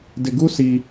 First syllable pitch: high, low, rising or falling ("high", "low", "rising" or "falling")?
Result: low